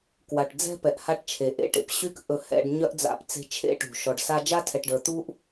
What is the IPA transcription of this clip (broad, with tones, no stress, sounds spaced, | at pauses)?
k w a˩ ʈ d͡z ɛ̤˥ p ɛ˩ ʔ h a˦ ʈ t͡ʃʰ e˩ ʔ ḛ˦ ʈ ḛ˨ p ɕ y˥ k ʔ ɵ˨ h ɛ̰˨ ɖ ɲ œ˥ ʔ d͡z a̰˦ p t͡s e̤˦ t͡ʃʰ ḛ˥ ʈ ṳ˩ ʃ ɔ˨ ɖ s a˦ d͡ʒ a˥ tʰ ɛ˨ ʈ ɖ ə˞˨ t̪ u˥ ʔ